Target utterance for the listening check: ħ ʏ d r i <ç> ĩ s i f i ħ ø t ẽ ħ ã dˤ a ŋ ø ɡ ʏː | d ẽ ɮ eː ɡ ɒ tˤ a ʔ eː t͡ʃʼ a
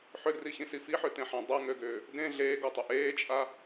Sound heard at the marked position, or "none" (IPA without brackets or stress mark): ç